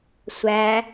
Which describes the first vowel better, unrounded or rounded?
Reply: unrounded